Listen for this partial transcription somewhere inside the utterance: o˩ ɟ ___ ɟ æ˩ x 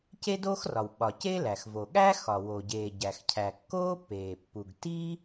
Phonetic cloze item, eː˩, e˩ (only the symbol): eː˩